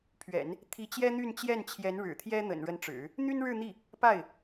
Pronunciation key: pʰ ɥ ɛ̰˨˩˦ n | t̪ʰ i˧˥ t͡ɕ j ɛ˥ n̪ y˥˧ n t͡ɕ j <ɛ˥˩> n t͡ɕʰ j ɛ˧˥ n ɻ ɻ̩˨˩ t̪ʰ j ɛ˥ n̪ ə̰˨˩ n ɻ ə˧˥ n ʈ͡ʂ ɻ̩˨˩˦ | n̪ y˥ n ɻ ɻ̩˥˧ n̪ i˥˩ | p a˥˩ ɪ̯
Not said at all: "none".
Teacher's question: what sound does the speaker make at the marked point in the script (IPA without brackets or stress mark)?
ɛ˥˩